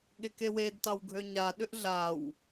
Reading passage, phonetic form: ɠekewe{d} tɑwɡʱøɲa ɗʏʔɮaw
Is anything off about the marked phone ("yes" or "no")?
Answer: no